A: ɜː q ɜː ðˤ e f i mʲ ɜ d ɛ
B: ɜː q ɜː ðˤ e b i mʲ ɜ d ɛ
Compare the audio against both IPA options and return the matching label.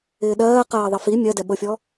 A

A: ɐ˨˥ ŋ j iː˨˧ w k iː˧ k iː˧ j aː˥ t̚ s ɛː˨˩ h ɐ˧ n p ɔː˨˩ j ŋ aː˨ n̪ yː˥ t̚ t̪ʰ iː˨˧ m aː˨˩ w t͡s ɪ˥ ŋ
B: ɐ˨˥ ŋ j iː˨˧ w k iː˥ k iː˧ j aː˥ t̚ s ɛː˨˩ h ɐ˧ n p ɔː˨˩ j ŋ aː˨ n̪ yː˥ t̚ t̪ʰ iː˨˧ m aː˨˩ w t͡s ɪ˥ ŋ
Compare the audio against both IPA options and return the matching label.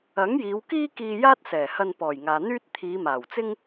B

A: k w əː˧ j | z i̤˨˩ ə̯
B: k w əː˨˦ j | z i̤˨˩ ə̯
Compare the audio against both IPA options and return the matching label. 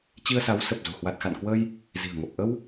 A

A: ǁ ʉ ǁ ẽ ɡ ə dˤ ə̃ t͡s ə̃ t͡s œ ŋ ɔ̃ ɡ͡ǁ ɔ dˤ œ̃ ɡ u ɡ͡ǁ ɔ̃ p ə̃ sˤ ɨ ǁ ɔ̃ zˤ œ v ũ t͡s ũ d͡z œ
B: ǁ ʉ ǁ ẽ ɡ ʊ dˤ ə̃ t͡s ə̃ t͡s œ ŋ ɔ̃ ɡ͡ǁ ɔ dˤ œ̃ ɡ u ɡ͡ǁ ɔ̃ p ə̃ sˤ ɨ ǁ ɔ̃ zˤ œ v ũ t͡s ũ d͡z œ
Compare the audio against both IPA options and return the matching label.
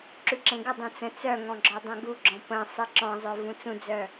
A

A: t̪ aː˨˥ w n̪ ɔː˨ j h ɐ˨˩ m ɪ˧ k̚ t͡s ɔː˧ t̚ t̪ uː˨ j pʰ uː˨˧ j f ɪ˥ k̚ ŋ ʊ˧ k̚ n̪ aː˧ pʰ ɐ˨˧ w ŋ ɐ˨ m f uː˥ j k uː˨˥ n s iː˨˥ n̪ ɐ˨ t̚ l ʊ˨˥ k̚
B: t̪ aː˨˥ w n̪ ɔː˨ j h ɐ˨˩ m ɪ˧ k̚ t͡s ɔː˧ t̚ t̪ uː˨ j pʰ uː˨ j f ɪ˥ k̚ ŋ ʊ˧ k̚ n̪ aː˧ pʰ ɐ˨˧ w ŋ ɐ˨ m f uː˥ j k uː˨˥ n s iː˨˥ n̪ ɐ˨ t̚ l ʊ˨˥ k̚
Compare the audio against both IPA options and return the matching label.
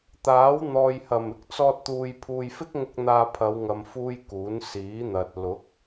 B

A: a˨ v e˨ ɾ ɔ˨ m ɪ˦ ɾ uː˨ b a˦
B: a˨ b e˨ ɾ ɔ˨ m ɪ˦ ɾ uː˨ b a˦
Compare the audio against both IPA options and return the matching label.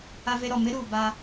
A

